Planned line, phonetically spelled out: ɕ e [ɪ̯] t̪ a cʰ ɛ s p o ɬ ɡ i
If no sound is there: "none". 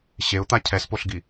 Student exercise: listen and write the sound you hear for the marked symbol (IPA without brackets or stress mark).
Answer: ʊ̯